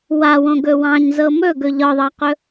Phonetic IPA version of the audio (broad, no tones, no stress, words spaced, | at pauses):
wawõɡɵ wɑ̃ɲzɤ mɵɡɵ ʎɒðˤɑqɵ